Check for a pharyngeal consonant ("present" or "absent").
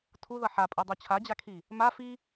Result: present